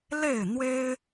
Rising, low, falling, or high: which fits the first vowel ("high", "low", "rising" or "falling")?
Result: falling